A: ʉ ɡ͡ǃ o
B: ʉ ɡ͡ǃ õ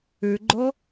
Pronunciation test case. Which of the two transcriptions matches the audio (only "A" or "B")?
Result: A